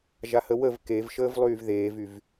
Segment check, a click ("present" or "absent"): absent